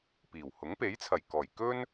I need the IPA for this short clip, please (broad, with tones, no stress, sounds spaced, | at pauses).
p iː˨˩ w h ʊ˨˥ ŋ p e˨˥ j t͡sʰ ɐ˨˩ j k ɔː˨˩ j k ɵ˥ n